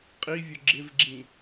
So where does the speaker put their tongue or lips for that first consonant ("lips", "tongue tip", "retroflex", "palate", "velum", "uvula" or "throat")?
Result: uvula